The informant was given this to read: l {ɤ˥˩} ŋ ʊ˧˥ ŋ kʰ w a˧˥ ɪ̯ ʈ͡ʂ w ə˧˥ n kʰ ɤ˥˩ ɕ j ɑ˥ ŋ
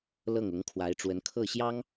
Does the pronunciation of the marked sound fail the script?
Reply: no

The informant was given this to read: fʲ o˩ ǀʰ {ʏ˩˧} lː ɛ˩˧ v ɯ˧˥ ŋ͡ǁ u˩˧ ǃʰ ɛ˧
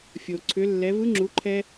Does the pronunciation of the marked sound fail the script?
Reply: no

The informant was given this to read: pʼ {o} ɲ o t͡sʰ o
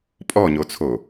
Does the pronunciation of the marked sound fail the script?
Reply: yes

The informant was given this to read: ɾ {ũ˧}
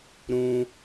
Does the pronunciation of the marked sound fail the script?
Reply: no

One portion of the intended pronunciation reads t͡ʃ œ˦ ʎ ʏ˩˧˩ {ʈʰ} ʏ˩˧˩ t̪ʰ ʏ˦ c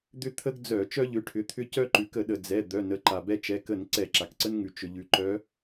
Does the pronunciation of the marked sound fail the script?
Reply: no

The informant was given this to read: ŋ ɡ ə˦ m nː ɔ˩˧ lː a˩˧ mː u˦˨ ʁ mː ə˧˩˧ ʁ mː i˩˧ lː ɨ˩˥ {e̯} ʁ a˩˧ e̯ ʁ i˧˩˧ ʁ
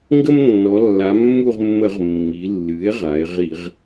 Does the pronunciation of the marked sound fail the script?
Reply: no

